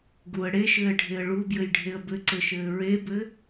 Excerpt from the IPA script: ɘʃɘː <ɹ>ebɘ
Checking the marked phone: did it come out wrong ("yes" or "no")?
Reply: no